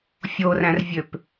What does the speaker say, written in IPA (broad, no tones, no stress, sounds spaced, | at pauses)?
fʲ o r æ̃ r vʲ ø p